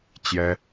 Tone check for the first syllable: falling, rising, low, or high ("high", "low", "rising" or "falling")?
high